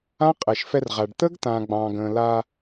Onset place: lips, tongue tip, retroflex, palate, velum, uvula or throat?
uvula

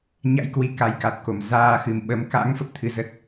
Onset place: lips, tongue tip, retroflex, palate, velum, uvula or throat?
palate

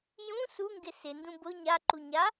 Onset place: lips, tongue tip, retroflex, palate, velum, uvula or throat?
palate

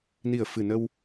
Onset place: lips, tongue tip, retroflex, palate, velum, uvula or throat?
tongue tip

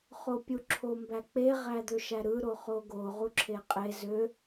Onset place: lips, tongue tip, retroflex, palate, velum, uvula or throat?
uvula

